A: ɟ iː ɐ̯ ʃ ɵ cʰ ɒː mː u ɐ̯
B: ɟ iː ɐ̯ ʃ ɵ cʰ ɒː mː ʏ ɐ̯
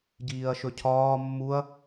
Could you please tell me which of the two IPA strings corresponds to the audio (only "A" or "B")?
A